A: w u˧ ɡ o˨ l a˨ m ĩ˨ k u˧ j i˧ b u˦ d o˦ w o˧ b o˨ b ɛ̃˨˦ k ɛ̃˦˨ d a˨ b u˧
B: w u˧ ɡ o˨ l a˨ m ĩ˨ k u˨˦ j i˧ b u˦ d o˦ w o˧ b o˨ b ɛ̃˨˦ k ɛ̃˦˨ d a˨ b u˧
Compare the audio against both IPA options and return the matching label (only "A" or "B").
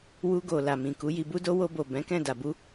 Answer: B